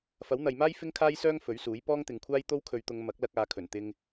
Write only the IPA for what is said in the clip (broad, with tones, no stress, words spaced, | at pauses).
fɐ˨˥wn̪ɐ˨jmaː˥j fɪ˥ŋkʰaː˥jsœː˥ŋ fɵ˨˥ɥsuː˨˥j pɔː˥ŋt̪ɪ˨˧ŋkʷʰaː˥j t̪o˥wkʰɵ˨˧ɥt̪ʊ˨˧ŋ mɐ˨˥k̚lɐ˧k̚ aː˨˧kʰɵ˨˩n t̪ɪ˧ŋ